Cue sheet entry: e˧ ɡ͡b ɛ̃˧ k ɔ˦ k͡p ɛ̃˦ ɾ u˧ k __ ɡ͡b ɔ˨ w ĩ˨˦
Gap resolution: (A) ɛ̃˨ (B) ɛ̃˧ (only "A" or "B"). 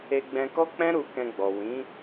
B